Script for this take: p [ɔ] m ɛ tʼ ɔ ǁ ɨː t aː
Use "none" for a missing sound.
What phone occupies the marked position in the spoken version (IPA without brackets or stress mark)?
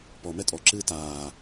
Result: ɔ